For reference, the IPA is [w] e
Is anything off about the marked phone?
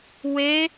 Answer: no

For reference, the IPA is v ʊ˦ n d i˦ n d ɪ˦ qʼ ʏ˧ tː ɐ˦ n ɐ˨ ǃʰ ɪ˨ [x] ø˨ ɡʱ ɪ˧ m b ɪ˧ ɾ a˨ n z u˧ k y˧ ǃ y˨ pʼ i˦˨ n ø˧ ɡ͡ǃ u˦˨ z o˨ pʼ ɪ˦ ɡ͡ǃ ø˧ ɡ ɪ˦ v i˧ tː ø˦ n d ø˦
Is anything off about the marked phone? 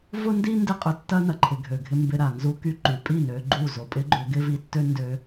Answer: yes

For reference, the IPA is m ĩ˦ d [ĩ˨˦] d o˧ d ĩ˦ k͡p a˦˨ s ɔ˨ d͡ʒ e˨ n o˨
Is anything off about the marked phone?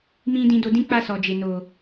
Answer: yes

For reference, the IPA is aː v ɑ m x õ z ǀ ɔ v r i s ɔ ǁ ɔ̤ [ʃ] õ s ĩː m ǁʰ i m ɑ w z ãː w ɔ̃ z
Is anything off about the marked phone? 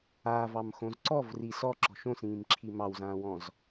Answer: no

